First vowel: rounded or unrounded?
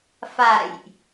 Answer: unrounded